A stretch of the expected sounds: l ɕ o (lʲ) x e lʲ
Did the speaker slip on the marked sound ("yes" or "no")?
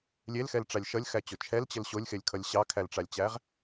no